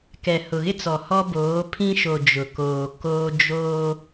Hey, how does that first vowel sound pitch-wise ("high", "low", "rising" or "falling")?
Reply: low